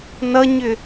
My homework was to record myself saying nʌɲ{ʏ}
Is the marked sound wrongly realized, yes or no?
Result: no